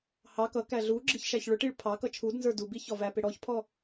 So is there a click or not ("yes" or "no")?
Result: yes